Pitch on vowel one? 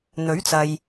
rising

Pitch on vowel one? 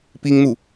high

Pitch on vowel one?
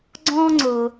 high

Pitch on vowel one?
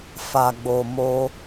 low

